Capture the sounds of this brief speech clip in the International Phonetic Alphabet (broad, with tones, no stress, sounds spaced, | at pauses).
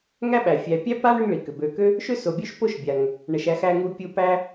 ŋ æ˥ ɓ æ˩ fʲ æ˨ pʲ æ˥ p a˥ ɳ ʏ˦ ŋ ɭ i˩ k ʏ˩ b ø˨ k ø˥ | ʃ ø˦ s o˩ bʲ ø˦ ʃ p o˦ ʃ bʲ a˩ ŋ | ɳ ə˨ ʃ æ˦ x æ˦ ŋ u˦ pʲ u˦ p æ˥